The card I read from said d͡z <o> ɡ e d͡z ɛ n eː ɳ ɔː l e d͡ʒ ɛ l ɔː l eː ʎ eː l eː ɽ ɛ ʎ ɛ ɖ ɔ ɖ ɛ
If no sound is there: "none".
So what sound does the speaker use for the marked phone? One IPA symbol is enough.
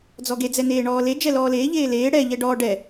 ɔ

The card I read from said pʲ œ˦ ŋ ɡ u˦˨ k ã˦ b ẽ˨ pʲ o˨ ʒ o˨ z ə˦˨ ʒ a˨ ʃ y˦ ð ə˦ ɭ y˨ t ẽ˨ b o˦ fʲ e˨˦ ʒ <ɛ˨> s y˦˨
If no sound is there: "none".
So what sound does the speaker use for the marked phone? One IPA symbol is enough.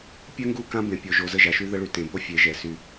ɛ˨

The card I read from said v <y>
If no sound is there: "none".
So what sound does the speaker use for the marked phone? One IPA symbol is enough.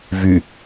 y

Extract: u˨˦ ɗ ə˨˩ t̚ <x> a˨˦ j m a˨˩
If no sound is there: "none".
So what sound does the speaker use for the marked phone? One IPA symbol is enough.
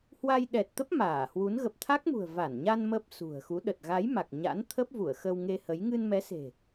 ɣ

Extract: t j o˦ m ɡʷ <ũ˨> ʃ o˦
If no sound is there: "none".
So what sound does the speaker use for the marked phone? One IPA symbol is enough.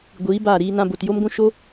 ũ˦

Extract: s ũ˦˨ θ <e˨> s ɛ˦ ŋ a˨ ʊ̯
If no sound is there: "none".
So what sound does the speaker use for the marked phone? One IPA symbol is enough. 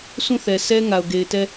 ɛ˨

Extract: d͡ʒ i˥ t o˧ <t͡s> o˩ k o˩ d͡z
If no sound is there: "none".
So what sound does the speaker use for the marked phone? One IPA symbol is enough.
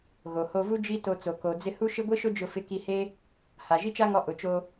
t͡s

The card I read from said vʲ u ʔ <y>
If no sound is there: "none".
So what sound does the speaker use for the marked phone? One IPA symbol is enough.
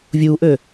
ø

